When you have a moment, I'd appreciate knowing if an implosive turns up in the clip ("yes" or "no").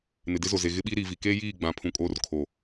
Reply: yes